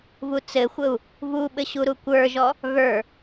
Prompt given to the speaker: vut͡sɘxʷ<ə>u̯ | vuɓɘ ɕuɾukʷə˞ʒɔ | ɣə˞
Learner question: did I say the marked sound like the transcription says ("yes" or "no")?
yes